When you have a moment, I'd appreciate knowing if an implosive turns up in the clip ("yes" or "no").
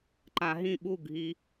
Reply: yes